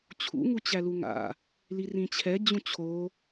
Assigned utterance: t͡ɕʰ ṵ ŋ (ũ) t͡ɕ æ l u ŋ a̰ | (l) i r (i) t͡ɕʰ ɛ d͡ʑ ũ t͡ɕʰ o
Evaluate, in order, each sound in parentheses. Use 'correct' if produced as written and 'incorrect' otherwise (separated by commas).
incorrect, correct, incorrect